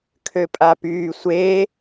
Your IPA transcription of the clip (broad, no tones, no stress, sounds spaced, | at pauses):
kʰ ø pʼ a p yː sʷ eː